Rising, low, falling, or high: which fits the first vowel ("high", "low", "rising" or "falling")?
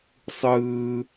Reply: high